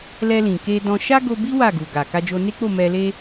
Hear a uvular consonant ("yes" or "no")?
no